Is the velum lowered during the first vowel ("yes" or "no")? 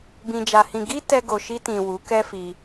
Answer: yes